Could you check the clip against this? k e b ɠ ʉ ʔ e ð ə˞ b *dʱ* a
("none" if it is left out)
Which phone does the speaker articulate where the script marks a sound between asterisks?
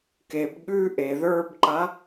ǃ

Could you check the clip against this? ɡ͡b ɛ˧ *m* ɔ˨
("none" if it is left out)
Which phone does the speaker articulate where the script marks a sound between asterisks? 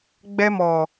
m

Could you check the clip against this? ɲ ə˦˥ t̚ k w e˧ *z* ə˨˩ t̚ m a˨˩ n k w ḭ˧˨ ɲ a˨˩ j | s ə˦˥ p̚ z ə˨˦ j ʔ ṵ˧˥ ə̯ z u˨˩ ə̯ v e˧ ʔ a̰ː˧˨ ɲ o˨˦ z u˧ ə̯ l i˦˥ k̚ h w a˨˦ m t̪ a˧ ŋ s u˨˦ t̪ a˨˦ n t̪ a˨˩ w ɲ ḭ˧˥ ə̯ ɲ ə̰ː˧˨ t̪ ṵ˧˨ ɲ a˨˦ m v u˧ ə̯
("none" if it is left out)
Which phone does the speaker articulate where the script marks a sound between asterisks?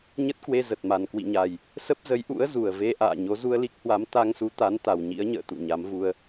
z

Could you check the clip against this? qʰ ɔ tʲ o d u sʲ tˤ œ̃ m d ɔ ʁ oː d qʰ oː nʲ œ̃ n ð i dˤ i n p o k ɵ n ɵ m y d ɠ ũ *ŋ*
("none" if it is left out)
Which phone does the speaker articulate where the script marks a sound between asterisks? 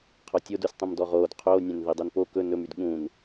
n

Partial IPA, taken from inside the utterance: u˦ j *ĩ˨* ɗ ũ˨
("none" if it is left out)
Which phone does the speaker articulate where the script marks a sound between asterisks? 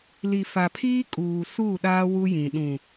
ĩ˨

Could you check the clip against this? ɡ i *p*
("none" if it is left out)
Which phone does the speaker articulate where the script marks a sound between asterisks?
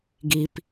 p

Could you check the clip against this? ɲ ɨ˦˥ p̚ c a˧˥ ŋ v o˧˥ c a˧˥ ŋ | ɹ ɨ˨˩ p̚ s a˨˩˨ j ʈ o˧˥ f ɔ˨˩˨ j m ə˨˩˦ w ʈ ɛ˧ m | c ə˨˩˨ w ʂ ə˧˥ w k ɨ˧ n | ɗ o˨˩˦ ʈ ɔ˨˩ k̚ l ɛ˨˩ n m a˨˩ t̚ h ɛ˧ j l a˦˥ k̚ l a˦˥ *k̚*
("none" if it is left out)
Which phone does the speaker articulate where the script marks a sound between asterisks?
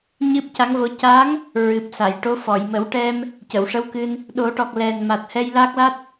t̚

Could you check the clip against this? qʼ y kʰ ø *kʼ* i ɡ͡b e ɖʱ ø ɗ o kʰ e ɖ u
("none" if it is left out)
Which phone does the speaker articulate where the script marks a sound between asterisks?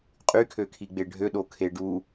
kʰ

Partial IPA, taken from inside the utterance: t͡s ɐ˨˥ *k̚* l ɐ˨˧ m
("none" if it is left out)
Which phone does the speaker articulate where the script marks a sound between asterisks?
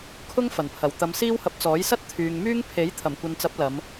p̚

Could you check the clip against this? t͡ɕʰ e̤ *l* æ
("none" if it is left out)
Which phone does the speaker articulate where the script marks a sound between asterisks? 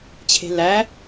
l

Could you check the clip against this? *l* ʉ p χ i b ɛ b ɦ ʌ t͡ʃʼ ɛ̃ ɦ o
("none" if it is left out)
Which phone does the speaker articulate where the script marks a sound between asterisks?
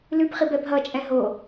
l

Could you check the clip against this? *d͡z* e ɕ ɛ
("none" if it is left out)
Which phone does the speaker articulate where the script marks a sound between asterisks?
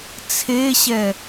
t͡sʰ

